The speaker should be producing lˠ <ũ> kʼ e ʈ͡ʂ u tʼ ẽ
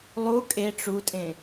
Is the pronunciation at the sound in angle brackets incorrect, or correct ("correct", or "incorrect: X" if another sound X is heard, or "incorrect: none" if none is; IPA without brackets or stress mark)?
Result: incorrect: u